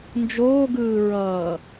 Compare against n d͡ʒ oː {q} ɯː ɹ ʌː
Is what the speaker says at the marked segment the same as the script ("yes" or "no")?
no